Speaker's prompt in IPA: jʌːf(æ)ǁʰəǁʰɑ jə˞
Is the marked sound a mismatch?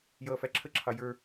no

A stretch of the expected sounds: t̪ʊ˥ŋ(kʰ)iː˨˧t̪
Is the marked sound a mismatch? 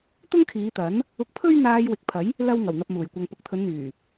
no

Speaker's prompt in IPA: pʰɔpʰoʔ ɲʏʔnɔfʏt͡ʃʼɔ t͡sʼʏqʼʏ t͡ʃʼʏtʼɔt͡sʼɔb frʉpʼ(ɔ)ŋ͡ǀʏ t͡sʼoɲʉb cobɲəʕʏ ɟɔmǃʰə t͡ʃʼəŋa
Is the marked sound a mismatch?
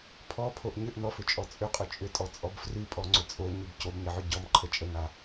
no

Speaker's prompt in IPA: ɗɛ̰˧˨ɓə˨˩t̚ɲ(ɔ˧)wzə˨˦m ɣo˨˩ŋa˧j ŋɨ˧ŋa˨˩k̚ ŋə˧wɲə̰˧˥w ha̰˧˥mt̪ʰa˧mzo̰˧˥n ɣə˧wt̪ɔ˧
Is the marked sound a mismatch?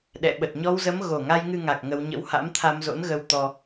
no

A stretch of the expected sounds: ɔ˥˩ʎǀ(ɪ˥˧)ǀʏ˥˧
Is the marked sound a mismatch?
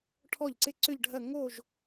no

